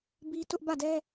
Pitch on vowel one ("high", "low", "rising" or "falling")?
high